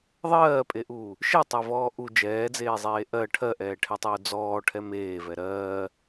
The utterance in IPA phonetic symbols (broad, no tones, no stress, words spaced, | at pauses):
ðˤɜːpʼeʔuː | ʃetˤavɔː ʔu d͡ʒɛːd͡zeːzˤeː ʔɜ ʈʰɜʔɛːʈʰɛtˤuː d͡zɔːʈʰɛ meːvɛ ɾɜː